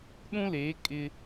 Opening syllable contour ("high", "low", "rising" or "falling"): high